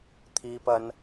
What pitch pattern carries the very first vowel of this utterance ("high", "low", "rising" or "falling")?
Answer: high